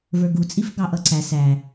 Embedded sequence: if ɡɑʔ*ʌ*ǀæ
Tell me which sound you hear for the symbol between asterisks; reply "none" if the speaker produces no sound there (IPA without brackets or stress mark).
ʌ